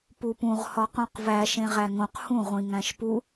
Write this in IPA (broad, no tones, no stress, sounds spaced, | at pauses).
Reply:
p u p ũ ʁ h ɒ q ũ q v æ ʃ ẽ ʁ æ ŋ õ q h ũ ʁʷ ĩ ŋ æ̃ ʃ p u